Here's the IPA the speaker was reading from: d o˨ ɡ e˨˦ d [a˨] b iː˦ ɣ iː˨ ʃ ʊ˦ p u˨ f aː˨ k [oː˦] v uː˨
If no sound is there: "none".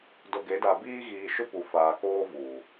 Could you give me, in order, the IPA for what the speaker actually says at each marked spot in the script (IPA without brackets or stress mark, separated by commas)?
a˨, oː˦